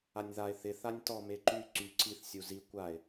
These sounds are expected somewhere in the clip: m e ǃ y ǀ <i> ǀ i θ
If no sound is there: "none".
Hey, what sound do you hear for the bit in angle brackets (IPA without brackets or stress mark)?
y